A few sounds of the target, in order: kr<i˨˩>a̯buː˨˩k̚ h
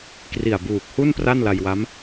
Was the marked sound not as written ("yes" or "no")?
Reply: no